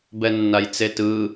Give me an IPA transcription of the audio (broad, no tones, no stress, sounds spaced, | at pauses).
b ɛ nː a j t͡s e t ɯ